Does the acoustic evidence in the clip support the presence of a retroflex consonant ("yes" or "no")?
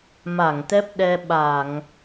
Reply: no